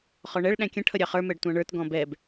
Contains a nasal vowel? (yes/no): yes